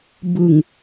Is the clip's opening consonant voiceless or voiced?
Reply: voiced